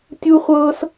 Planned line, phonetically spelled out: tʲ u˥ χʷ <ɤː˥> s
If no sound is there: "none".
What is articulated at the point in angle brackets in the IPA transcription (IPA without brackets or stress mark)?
ɤː˥